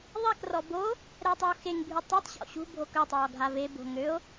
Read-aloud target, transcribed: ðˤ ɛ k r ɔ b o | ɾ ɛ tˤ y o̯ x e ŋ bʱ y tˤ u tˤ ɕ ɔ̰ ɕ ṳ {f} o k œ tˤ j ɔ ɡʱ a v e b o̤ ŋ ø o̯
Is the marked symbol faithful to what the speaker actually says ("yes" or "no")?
no